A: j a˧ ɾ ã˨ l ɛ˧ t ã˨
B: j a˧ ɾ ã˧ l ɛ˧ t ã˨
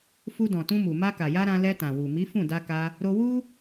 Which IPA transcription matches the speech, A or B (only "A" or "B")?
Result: B